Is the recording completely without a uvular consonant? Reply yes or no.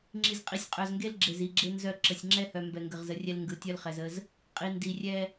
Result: no